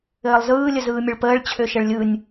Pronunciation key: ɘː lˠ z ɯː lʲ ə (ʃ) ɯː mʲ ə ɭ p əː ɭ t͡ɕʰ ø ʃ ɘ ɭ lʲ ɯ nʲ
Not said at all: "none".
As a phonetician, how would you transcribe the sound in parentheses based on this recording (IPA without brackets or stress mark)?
z